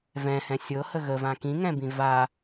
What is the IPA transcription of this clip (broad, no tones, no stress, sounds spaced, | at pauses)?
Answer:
v ɛ̃ h ɛ̃ sʲ ɤ h ə ɣ ə v ã k ĩ ŋ ɛ̃ b ĩ v a